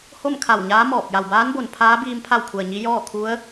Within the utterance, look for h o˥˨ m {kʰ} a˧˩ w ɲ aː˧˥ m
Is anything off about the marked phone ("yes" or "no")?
no